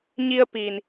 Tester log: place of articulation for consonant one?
palatal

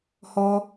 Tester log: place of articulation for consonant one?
glottal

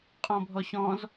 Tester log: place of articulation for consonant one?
uvular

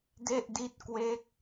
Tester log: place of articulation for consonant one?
alveolar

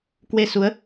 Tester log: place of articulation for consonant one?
velar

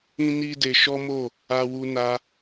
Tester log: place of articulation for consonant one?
alveolar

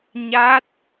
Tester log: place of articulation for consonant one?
palatal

